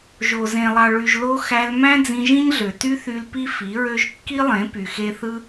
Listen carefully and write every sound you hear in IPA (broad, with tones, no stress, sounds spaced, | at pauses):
ʒ o˨ z ẽ˨ lˠ ɑ˨ ɭ y˨ ʒ l o˧ x æ˧ l m æ̃˦ d͡z ĩ˧ ʒ ĩ˦ ɲ ɮ ø˨ t y˦ θ y˧ l p i˦ f i˨˦ ɹ ø˦ ʒ kː i˦ lˠ ẽ˨˦ p y˨ x e˦ θ ɯ˦